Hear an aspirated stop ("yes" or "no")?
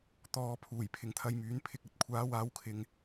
yes